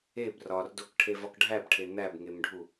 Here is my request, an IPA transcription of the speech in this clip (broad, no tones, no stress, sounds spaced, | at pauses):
e b r ɒ r d o k ʈʰ e v ɒ k ɖʱ æ b ʈʰ e n̪ æ b ŋ e m ɖʱ u